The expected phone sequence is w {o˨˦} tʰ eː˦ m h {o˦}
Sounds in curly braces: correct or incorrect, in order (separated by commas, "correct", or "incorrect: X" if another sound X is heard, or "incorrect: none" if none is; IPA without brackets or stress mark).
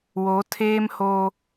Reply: correct, correct